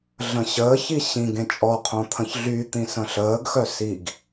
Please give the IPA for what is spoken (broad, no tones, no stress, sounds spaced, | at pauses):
ɮ ə̃ ɕ əː ç i ɕ ĩ ɡ ẽ t͡ʃʼ ɔ qʰ õ t̪ʰ ə̃ ç ɮ y t̪ ĩ s ə̃ ɬ əː ɡ x œ s i ɡ